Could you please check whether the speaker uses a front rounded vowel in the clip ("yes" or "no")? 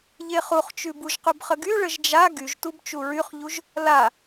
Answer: yes